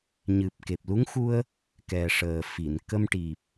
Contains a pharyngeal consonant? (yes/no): no